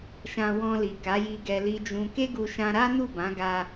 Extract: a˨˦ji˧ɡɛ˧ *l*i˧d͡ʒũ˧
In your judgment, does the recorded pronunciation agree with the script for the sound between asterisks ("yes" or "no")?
yes